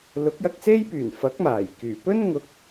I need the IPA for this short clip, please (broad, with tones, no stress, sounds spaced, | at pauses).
l ʊ˨˥ k̚ j ɐ˧ k̚ s e˥ j p yː˨˩ n f ɐ˨˥ k̚ m aː˨˩ j k yː˨˩ p ɵ˥ n ŋ ʊ˨˥ k̚